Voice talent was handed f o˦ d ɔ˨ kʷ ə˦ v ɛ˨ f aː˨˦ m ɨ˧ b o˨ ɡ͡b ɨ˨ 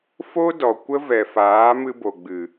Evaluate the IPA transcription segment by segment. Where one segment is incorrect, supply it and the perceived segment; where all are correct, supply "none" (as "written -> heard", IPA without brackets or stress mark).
none